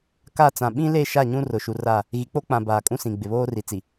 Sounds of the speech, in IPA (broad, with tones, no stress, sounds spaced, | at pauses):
k a˦˨ t͡s ã˨ ɓ ĩ˦ l e˦˨ ʃ a˦˨ ɲ ũ˦ r ʊ˨ ʃ u˨ r a˦˨ | ɣ i˨ k͡p o˦ k͡p ã˨ b aː˨ kʼ ũ˦ s ĩ˨ ɡ͡b ɪ˨ β oː˦ r i˨ t͡s i˨